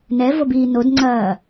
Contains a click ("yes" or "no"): yes